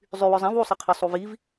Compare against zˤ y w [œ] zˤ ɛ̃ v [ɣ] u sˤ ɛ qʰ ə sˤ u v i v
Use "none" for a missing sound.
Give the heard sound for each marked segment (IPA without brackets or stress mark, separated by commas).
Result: œ, w